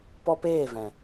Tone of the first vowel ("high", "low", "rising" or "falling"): high